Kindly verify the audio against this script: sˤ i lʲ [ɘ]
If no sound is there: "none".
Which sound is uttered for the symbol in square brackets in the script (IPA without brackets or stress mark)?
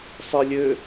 ɘ